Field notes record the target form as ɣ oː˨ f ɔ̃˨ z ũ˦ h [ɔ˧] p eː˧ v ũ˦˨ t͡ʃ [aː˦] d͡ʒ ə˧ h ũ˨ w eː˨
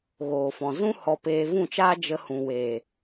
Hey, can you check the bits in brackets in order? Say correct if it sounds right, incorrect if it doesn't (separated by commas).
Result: correct, correct